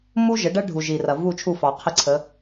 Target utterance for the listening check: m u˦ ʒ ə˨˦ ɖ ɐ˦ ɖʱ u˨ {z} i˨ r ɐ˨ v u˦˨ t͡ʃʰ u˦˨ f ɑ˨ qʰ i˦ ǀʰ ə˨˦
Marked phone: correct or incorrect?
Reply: incorrect